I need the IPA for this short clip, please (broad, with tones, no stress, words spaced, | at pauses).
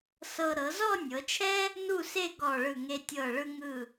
sɤ˧ ɾɤ˩˧zɔ˥˧nʲɤ˩˧t͡ʃʰɛ˥ | nu˥˧se˥˧ ɡɔ˧˩ɭɯ˧˩ŋe˧tʲɤ˧˩ ɭɯ˧ŋɯ˧˩